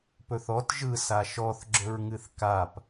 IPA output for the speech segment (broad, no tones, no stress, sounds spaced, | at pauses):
p ɵ θ ɔ t ʒ ɯ s a ʃ ɔ θ ɡ͡ǁ ɵ ɹ ŋ ɨ θ k a p